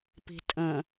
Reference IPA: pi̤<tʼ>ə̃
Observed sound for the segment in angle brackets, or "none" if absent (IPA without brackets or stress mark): tʼ